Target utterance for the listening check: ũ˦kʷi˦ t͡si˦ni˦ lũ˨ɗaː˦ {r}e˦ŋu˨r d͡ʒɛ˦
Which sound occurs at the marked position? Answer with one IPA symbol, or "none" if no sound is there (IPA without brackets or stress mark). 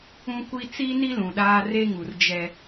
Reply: r